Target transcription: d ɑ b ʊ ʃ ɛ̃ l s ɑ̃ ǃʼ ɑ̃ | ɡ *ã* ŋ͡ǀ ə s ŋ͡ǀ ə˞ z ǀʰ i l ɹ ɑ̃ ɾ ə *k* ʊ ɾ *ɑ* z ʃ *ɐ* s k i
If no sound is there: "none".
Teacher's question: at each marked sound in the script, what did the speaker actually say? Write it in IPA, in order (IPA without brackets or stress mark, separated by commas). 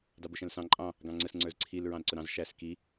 ɑ̃, ǀ, ɑ̃, æ